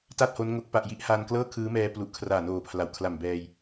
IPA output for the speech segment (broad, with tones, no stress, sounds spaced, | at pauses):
t a˥˩ t̚ h o˦˥ n ŋ o˦˥ k̚ p a˨˩ ʔ j i˦˥ ʔ h a˧ n k l ɤː˥˩ kʰ ɯː˦˥ m ɛː˧ p l u˨˩ ʔ kʰ r aː˨˩ n oː˨˩ pʰ l a˨˩ w kʰ l a˨˩ m b ɛː˧ j